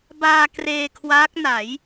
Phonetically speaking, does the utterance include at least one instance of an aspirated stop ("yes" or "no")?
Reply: yes